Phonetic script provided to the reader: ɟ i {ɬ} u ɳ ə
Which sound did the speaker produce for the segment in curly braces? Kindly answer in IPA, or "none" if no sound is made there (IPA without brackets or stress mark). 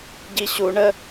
ɕ